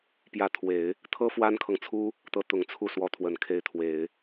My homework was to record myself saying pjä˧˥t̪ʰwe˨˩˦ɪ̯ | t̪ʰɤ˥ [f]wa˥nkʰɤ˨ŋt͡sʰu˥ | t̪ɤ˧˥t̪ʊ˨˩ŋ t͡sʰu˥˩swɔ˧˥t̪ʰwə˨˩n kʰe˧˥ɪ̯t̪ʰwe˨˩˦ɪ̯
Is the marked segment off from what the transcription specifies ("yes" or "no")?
no